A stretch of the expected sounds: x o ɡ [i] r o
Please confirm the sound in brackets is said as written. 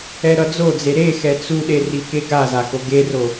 no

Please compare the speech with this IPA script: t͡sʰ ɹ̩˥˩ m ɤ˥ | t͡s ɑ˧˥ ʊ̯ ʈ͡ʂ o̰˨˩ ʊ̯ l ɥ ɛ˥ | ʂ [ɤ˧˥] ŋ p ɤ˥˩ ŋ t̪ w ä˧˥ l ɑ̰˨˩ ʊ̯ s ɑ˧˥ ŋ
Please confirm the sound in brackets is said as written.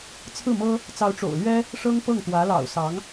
no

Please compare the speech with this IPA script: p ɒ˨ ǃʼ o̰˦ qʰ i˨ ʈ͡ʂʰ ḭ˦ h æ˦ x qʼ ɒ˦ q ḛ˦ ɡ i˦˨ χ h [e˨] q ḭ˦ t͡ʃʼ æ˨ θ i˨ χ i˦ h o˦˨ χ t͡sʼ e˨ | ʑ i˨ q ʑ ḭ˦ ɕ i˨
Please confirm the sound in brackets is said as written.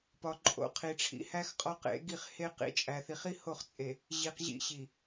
no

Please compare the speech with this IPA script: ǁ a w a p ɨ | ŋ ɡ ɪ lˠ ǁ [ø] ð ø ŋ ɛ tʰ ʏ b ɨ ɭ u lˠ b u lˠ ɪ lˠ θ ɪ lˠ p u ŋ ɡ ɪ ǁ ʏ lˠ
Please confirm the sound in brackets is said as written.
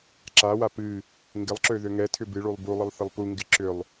yes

